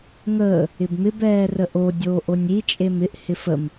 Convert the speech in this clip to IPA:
ŋ əː | ɪ b m ɪ b ɛː r ə ʔ o dʲ oː ʔ o nʲ i t͡ʃʼ e m ɪ ʔ h ɪ f ə m

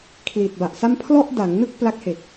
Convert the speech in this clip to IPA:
kʰ l i˨˩ t̚ b a˨˩ ʔ s a˥˩ m pʰ l ɔ˥˩ ʔ d a˩˦ ŋ n ɯ˥˩ k̚ p l a˦˥ k̚ h e˨˩ k̚

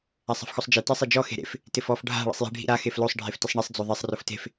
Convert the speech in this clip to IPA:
a sˤ ɛ̤ f x o sˤ d͡ʒ e t ɛ sˤ e d͡ʒ ɔ x e̤ ɾ ḛ f | t ɪ f ɔ f ɖʱ a̤ ɭ ḭ sˤ j e̤ ɖʱ ḭ ɾ a x e f l o sˤ ɖʱ e f t ɪ sˤ ɳ i sˤ d͡z o ðˤ e sˤ r ʊ f t e̤ f

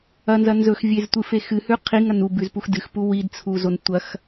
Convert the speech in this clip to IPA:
ɐ n z ɐ n z ɵ x vʲ e z tʷ ɨ f e x ɨ h ʉ qʰ i ŋ ɐ n u b ʉ z p u x d ɨ x p u w i d t͡sʰ u z o n tʷ ɐ x

